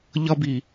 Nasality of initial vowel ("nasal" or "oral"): oral